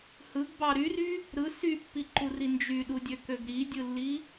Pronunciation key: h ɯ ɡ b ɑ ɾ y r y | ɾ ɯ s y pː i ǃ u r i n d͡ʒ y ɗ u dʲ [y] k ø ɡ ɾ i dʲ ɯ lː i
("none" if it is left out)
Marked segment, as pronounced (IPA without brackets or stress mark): ø